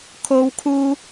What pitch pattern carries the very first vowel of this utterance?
high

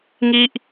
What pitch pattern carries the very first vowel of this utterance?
high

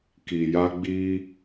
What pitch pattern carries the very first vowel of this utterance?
low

